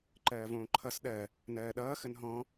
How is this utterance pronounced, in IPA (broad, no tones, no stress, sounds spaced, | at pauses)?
ǃ ɜː v õː ǃʰ ʌ s ɗ ɜ | n ɜː ɗ ʌː x ə n ɦ ɔ̃